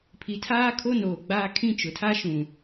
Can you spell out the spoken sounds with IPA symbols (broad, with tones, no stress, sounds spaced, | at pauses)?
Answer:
pʰ i˨ tʰ aː˦ kʰ o˦ n oː˨ ɡ͡b aː˦ kʰ ĩ˦ t͡ʃ ʊ˨ tʰ a˦ ʃ ũ˨